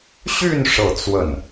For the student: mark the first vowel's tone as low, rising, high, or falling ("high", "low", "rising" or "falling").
falling